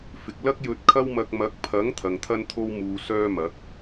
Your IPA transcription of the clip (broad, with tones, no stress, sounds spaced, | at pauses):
f ɪ˨ k̚ l ɐ˥ k̚ j ɵ˧ t̚ kʰ ɐ˥ w m ɐ˧ k̚ m ɐ˨˥ k̚ pʰ ɐ˨˥ ŋ t̪ʰ ɐ˨ ŋ t̪ʰ ɐ˥ n t̪ʰ o˥ w m uː˧ s œː˥ m ɐ˨˥ k̚